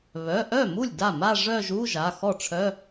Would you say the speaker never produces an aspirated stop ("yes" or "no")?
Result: no